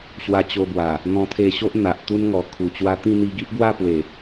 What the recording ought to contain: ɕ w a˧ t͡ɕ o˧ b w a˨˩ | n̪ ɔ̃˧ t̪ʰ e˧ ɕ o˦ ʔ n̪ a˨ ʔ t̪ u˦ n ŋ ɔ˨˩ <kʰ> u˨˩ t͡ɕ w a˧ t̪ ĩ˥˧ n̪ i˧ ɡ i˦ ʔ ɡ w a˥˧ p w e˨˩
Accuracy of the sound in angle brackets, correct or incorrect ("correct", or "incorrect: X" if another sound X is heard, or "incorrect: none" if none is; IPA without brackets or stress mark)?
correct